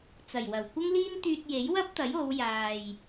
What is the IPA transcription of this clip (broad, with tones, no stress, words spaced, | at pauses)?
t͡sɐ˨˩jwɐ˨˩w kʷɐ˥ŋliː˥n t̪yː˧t̚je˨˥jwɐ˥p̚t̪ɐ˨˥j o˨˧wjaː˨j